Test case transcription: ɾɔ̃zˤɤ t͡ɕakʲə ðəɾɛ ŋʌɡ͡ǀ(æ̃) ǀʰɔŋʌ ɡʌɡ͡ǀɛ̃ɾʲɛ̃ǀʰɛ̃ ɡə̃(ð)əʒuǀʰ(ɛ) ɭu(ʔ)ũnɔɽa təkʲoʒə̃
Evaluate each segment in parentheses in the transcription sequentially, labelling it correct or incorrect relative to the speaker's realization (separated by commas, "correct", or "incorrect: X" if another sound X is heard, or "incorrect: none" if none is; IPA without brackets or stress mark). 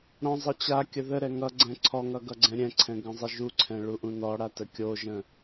incorrect: ɛ̃, incorrect: zˤ, incorrect: ɛ̃, correct